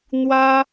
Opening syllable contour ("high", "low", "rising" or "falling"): high